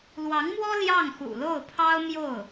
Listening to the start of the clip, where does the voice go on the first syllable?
rising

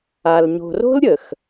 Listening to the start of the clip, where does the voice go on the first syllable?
low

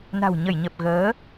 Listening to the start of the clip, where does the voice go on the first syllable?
low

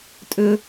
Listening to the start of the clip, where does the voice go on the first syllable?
high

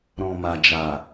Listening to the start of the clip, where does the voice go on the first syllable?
low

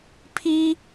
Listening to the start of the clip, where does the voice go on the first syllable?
high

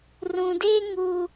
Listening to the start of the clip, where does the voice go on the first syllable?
low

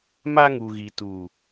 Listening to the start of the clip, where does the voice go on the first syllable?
high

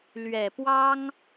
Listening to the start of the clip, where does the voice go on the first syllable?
low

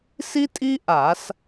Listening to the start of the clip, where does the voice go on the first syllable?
high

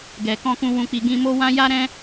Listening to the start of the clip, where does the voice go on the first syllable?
low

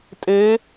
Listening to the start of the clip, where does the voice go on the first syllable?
rising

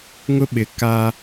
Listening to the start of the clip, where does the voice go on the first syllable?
high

